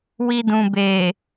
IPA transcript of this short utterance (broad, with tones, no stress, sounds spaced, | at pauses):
w i˧ d ũ˨ b e˨